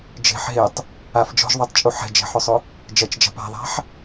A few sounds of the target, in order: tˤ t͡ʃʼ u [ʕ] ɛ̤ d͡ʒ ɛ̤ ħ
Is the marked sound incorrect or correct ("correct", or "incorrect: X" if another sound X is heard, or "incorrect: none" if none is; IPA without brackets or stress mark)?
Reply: incorrect: ħ